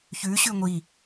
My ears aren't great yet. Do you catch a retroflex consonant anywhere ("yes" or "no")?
no